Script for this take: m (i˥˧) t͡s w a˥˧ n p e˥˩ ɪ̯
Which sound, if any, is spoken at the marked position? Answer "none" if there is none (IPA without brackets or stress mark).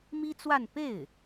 i˥